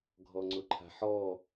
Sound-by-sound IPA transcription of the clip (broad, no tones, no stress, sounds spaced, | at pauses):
ɡʱ ɔ ŋ͡ǀ ʊ ǃʰ a̤ ħ ɔ